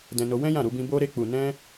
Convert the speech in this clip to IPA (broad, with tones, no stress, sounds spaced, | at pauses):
d ɛ̃˧ n o˧ w ɛ̃˦ j ã˦˨ ɾ u˧ b ĩ˧ b o˧ ɾ e˧ k͡p u˨ n ɛ̃˧